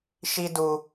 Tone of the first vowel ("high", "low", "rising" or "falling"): high